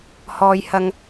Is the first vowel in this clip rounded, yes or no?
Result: yes